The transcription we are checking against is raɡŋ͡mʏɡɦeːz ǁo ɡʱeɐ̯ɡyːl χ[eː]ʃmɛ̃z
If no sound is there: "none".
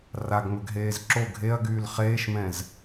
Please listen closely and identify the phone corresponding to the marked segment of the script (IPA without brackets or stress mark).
eː